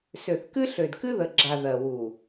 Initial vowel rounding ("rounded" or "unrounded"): rounded